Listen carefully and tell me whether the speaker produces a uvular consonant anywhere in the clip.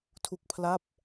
no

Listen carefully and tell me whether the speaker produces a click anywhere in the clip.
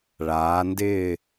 no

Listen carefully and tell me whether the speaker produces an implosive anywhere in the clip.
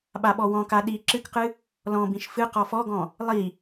yes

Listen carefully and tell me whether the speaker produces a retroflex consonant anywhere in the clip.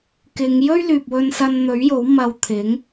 no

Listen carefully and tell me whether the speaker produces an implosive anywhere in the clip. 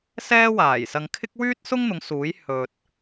no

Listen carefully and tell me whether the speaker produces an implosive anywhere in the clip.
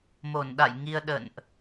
yes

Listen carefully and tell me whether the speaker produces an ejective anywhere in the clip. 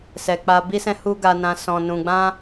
no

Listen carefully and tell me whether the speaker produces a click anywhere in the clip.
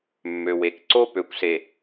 yes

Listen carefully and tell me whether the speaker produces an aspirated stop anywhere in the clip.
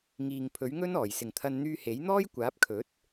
yes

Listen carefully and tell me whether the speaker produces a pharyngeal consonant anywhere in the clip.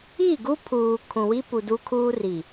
no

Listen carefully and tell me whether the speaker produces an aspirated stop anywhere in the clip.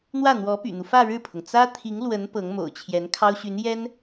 yes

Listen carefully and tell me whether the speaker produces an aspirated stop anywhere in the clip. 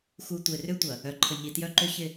yes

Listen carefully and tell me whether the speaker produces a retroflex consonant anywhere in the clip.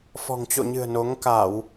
no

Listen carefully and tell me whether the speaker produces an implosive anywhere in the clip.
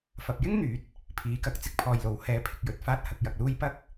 no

